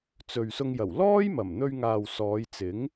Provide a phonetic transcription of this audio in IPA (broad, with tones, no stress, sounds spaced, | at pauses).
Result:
t͡s ɵ˨ ɥ s ʊ˧ ŋ j ɐ˨˩ w l ɔː˥ j m ɐ˨˩ m n̪ ɵ˧ ɥ ŋ aː˨ w s ɔː˨˧ j t͡s ɪ˨˥ ŋ